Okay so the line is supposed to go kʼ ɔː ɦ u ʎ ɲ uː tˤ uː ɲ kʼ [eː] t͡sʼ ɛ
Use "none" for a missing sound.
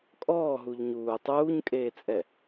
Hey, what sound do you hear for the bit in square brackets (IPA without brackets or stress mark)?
eː